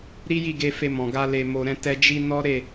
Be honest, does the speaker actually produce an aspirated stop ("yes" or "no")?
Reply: no